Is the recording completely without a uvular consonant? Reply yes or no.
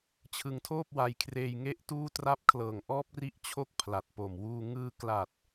yes